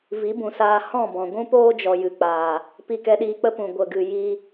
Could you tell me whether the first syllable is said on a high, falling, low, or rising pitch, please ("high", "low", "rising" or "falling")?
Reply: rising